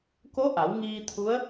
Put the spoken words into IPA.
k o˧˥ ʔ a˩˧ w ŋ iː˧ t̪ʰ u˧˥ ə̯

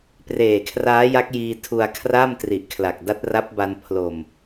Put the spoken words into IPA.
p r eː˨˩ kʰ r aː˦˥ j a˦˥ k̚ j iː˧ tʰ u˧ a̯ kʰ r a˥˩ m t r i˨˩ ʔ kʰ l a˨˩ k̚ d a˦˥ t̚ r a˦˥ p̚ b a˧ n pʰ l o˨˩ m

